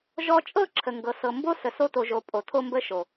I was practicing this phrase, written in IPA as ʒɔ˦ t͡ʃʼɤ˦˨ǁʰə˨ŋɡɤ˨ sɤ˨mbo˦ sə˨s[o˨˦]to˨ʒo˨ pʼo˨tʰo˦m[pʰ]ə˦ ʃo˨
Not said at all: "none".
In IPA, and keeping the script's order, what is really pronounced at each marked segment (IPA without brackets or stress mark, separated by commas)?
o˦, b